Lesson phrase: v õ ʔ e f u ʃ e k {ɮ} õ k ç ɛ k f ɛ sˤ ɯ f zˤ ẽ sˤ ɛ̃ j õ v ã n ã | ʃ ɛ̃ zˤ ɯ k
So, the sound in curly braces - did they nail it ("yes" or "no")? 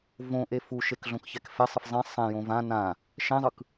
yes